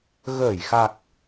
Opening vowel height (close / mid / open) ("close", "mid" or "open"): mid